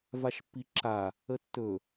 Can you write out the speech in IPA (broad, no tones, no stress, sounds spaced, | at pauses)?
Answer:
v a ʃ pː i ǁ a | ə tː ɵ